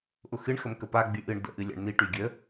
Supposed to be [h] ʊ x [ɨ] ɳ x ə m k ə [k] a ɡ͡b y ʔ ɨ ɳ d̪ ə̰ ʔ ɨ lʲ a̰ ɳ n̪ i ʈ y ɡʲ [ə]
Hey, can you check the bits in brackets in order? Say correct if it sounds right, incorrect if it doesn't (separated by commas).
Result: incorrect, correct, incorrect, correct